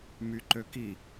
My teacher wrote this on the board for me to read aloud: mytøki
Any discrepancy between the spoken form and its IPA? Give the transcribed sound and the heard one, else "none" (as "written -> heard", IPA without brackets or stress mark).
t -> ǃ